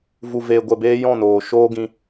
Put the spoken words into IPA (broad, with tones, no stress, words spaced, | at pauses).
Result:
vu˨veː˨ɡʷɛ˨beː˧ jɔ̃˦˨noː˨ ʃoː˧ ɡĩ˧